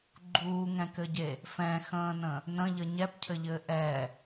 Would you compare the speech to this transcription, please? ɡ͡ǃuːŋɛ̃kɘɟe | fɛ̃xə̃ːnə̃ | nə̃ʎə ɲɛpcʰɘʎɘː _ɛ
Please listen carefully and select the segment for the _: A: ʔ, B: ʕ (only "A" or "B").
A